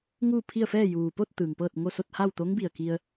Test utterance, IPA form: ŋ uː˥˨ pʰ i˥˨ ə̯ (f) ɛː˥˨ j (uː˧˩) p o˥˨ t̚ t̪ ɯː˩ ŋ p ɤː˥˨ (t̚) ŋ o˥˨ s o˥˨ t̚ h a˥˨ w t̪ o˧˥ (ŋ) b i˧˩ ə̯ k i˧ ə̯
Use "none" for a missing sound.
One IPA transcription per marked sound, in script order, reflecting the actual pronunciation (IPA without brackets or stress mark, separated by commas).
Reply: f, uː˩, t̚, ŋ